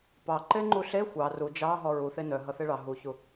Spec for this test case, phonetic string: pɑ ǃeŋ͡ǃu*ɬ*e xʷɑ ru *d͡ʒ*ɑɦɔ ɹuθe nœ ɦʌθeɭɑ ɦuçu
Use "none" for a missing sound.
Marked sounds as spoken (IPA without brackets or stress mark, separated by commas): ɬ, d͡ʒ